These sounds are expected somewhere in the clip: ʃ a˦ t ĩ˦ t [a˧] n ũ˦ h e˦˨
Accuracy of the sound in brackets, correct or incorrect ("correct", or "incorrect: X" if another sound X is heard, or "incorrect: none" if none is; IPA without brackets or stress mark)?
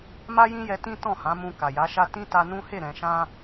correct